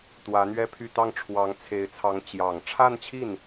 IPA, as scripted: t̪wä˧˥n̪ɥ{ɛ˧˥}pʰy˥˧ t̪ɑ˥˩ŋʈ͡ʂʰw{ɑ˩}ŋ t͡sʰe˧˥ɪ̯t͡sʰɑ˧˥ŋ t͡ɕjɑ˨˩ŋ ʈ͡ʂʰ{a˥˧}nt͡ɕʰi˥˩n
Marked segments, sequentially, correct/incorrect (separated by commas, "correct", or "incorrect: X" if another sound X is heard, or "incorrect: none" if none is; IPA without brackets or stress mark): incorrect: ɛ˥, incorrect: ɑ˧˥, correct